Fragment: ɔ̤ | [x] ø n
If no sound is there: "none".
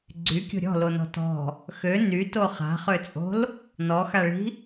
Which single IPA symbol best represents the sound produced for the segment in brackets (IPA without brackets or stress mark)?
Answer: x